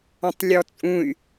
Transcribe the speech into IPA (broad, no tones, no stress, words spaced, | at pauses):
ɔ̃tˤlʲɔt͡sʼũy̯